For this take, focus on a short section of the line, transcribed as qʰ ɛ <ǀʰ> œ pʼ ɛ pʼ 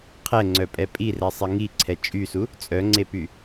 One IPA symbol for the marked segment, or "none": ŋ͡ǀ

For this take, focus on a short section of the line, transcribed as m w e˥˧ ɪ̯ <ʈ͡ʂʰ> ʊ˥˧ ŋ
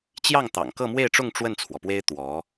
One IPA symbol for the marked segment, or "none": ʈ͡ʂ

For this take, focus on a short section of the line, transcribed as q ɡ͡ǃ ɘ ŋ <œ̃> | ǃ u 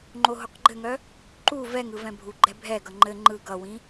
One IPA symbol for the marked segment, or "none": œ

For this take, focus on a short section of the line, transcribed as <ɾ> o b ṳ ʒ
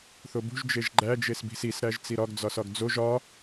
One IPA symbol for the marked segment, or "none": θ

